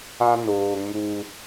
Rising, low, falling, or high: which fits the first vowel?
high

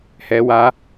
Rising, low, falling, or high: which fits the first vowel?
high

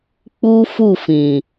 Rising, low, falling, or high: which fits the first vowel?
high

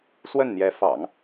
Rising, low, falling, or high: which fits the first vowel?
falling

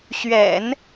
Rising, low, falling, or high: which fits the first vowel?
low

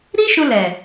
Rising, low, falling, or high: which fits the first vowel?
high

